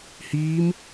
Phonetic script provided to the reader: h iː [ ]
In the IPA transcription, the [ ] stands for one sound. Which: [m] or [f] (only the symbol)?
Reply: m